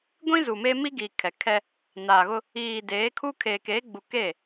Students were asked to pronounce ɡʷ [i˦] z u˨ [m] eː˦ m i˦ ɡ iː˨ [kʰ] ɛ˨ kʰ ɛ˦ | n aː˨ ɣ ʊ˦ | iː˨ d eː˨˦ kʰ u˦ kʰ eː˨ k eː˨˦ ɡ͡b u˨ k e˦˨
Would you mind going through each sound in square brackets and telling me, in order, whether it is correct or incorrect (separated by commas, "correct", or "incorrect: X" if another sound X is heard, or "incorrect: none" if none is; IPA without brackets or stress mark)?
incorrect: ĩ˦, correct, correct